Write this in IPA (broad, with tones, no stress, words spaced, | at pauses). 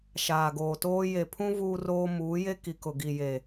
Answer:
ʃaː˨ɡoː˨toː˦ je˨pʰũ˦ vuː˦roː˦ muː˨˦je˦ ki˨kʊ˨ ɡi˨je˨